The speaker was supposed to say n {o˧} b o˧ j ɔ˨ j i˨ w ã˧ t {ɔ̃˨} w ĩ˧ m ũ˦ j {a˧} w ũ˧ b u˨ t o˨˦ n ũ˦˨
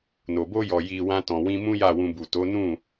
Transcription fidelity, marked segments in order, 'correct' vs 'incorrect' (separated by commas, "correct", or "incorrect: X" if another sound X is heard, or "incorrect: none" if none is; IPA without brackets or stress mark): incorrect: o˨, correct, incorrect: a˦˨